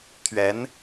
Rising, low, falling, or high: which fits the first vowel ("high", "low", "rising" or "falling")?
rising